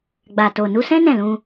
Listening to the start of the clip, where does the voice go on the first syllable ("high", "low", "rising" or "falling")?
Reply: low